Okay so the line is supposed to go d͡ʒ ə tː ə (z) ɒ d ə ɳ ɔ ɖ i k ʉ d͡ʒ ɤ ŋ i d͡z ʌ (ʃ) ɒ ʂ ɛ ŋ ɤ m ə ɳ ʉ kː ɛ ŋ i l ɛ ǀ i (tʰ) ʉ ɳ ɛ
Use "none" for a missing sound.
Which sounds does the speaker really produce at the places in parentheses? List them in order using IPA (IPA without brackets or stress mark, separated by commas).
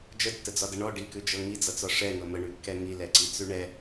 d͡z, t͡s, t͡s